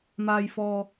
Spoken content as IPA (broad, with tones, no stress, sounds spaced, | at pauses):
m aː˨ j f ɔː˨